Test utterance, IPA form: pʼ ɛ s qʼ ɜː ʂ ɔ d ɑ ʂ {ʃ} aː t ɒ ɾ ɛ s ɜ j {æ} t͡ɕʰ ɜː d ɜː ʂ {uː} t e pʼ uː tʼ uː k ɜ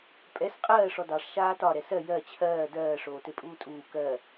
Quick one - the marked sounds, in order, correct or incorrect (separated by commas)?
correct, incorrect, incorrect